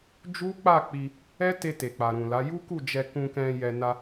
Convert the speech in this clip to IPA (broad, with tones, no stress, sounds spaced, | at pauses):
d͡ʒ u˦ k͡p a˦˨ k͡p i˧ | ɛ˦ t e˧ t e˨ k͡p a˨ ɾ ũ˨ l a˨˦ j u˦ k u˦˨ d͡ʒ ɛ˧ k ũ˧ k ɛ̃˧ j ɛ˨ n a˧